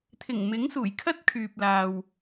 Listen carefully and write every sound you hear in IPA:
t̪ʰ ɪ˨˩ ŋ m ɪ˨˥ ŋ s uː˨˩ j kʰ ɐ˥ t̚ kʰ yː˨ p̚ l aː˨ w

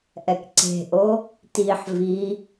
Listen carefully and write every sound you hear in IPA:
ʔ ɛ k ǀ e̤ ʔ o | t i ħ v i

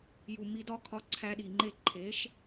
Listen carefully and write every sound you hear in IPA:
j u˨ m i˧ d ɒ˦ kʰ ɒ˧ ǀʰ æ˧ ɗ i˨ ŋ͡ǃ e˦˨ ǃʰ e˨˦ ʃ

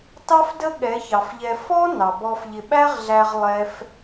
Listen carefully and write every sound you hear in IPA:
t ɑ˦ f d ə˦ ɠ ɛ˨˦ ç ɑ˨ f ʎ ɛ˧ f ɔ˦ n ɑ˨ b ɔ˧ f ʎ ɪ˧ ɓ æ˦ ʁ ɮ æ˧ ʁ lˠ ɛ˦ f

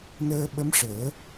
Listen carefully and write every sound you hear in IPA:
n əː˧ ɓ ə˧˥ m ʂ əː˨˩˦

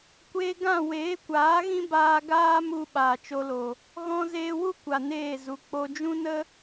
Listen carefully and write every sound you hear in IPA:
kʷ eː˧ ɡ ã˦˨ w eː˨˦ kʷ aː˨˦ ɣ ĩ˦ b aː˧ ɡ aː˦ m u˧ ɓ aː˨ t͡ʃ o˧ l o˨ | ɣ ɔ̃˧ z eː˧ w u˦ kʷ a˨ n eː˦˨ z u˨ k͡p o˧ d͡ʒ ũ˦ n ə˦

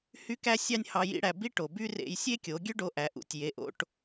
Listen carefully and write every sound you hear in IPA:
h y˥ k æ˥ sʲ ɑ˥ nʲ h ɑ˧ j ḭ˥ ɽ æ˧ b i˥ ʈ o˩ b y˥ r ḛ˧ j sʲ e˥ kʲ o˩˧ ɡʲ ø˥ ɖ o˧ ʔ æ˩˧ ʔ ṵ˩˧ tʲ j e˩˧ ʔ o̰˧ ʈ

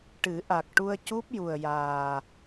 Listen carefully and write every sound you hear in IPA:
ʈ ɨ˨˩˦ ʔ a˨˩ k̚ ʈ u˧ ə̯ c u˦˥ p̚ j u˨˩ ə̯ j aː˨˩

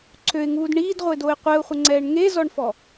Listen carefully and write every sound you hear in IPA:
ǀʰ ø ɪ̯ ŋ uː d ɳ iː d ʁʷ e d o ɪ̯ qʷ ɛ ʊ̯ χʷ ə ŋ͡ǀ ɛː ɳ ŋ e z ɔ ɳ f ɔ

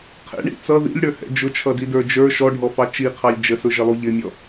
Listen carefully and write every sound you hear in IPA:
qʰ ɛ̰ ɳ ḭ t͡s ʌ ð ḭ lʲ ɽ ə˞ h ɛ̰ d͡ʒ ʊ t͡ʃʰ ʌ d i d ə˞ d͡ʒ ə˞ ʃ ɔ ɖʱ ɔ f ɑ t͡ʃ i qʰ ɑ lʲ d͡ʒ ə s ʊ ʒ ɪ lˠ u ʎ ɪ mʲ ɔ

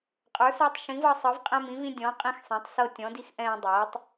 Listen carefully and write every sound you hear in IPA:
qʼ ə˞˨˥ s ə˞˦ tˤ ʃ ĩ˨˥ v ɤ˦ sˤ ɤ˨˥ v qʼ ɛ̃˦ m ĩ˨˥ v ĩ˦ dʲ ɔ̃˨˥ qʼ ĩ˦ x sˤ ɛ̃˨˥ tˤ s ɤ˦ tʲ ɔ̃˨˥ d i˦ x ʔ ɛ̃ː˦ dˤ ɤː˨˥ tˤ

